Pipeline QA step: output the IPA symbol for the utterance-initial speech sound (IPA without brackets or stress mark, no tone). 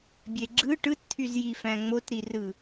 bʲ